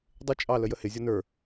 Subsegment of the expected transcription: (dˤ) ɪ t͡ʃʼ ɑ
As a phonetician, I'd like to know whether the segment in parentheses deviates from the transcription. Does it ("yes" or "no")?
no